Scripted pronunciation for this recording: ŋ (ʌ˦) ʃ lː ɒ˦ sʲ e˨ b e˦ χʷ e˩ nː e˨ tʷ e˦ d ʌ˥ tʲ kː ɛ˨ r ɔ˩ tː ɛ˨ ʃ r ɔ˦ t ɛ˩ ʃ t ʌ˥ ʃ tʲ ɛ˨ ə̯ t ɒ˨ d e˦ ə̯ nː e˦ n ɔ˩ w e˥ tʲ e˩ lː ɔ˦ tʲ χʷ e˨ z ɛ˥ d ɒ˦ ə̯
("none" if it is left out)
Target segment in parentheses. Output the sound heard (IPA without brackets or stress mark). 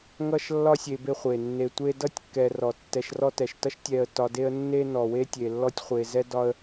ʌ˦